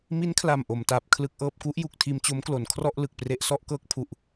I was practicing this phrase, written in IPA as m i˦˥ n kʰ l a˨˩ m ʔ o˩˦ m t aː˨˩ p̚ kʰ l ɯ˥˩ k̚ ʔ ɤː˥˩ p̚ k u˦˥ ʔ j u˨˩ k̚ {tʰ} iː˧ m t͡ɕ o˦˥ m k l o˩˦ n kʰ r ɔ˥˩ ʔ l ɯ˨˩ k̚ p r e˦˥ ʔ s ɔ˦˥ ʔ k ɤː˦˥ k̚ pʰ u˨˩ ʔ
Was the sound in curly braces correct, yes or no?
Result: yes